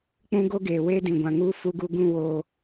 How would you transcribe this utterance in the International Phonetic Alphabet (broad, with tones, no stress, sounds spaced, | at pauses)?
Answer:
k͡p ũ˦ ɡ o˦ ɡ eː˨ w eː˦ d ĩ˨ ɡʷ ã˨ ŋ u˦ f u˦ ɡ u˦ ɡ ũ˦ w oː˦